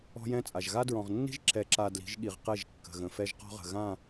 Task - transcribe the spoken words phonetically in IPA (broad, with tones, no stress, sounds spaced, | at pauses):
ɔ̤˦ j ɛ̃˦ t͡sʼ a˨ ʒ ɣ a˦ d ɹ ɔ̃˨ ʁ nː i̤˦ ʒ ǁ ɛ˨ ǁ a˨ d l i̤˨˦ ʒ ɠ i˨ ʁ q ɛ˦˨ ʒ kː ə̤˨ ɣ ə̃˨ f ɛ˦ ʒ q ɔ̤˦ ʁ ə̤˨ ɣ ã˦˨